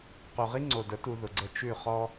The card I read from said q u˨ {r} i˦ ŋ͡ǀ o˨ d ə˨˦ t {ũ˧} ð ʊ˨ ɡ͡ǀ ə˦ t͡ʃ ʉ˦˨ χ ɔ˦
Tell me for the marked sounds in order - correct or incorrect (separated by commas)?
incorrect, incorrect